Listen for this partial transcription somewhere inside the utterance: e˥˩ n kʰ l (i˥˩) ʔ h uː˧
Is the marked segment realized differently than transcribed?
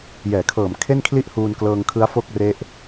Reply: no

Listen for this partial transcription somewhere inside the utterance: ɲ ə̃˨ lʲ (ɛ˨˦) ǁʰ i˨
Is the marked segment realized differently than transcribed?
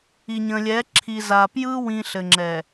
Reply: no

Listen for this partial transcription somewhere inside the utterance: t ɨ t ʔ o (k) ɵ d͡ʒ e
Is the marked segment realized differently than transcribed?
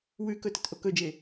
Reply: no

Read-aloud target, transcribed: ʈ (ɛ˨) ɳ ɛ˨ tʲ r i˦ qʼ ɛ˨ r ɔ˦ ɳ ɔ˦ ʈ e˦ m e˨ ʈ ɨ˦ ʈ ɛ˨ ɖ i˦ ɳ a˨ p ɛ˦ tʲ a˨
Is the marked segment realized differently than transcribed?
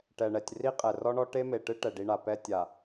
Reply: no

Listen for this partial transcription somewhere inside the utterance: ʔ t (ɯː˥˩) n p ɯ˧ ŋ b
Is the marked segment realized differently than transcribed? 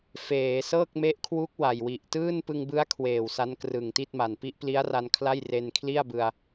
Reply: no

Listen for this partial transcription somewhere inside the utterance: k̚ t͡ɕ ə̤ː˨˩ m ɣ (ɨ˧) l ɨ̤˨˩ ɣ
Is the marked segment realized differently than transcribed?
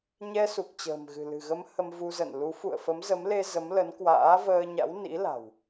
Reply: yes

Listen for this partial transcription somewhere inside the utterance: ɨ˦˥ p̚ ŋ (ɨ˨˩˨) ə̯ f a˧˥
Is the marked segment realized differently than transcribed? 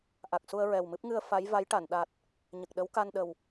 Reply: yes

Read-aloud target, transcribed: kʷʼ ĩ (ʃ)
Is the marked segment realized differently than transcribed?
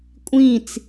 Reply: yes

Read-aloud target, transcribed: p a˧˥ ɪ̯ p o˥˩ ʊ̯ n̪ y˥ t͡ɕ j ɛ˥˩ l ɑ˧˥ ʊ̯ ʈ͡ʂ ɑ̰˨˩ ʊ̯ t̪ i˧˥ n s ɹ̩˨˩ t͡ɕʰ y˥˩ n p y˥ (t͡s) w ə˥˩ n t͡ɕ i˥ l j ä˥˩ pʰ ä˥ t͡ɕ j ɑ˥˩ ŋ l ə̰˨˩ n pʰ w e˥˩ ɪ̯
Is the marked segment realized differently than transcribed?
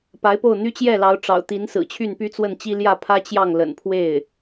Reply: no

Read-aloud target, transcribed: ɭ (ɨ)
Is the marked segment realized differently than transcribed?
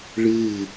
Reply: no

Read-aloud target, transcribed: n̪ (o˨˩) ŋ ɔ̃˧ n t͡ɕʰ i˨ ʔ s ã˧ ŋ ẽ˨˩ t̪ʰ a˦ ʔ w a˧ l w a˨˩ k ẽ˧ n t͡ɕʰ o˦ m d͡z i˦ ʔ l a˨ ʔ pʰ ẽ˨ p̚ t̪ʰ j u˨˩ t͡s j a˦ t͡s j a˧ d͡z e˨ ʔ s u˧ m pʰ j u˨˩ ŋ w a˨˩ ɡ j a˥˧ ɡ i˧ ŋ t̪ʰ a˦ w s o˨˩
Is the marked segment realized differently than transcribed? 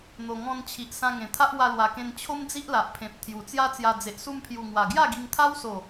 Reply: no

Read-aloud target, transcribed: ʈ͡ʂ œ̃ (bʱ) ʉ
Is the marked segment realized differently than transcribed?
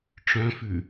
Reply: yes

